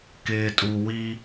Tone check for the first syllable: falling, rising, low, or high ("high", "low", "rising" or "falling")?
high